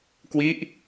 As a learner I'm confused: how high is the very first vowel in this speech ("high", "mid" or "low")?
high